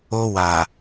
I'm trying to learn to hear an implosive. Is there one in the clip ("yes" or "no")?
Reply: no